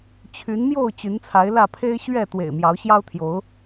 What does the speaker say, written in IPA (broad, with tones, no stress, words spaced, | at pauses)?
t͡ɕʰy˨˦nmjo˥˨ʊ̯ t͡ɕy˨˦nt͡sʰa˨˦ɪ̯lä˥˨ pʰe˦ɪ̯ ɕɥɛ˥˨ t̪wḛ˨˩ɪ̯mjɑ˨˦ʊ̯ɕjɑ˦ʊ̯t̪ʰjo˨˦ʊ̯